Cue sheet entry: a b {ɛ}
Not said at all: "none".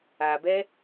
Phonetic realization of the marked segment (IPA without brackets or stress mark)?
ɛ